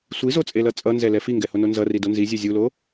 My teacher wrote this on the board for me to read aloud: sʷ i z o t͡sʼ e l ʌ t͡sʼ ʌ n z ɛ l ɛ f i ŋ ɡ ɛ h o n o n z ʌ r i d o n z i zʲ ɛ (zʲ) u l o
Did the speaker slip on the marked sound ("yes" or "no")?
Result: no